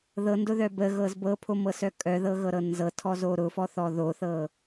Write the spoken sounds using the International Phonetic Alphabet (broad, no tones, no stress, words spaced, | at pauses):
ðɤndʊðœ bəɣɤz bɤpʰomɤsœ kʼœðɤɣɤɾɤ nzɤtʰɔzo ɾʊfɔθɔ ðoθɤ